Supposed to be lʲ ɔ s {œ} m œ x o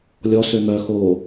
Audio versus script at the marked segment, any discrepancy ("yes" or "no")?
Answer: yes